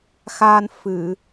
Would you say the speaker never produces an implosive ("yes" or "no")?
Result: yes